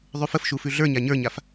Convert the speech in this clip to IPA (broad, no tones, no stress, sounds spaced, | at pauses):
ðˤ ʉ f ə f ʃ u f ʉ ɮ ə˞ ɲ a ɲ ə˞ ɲ a f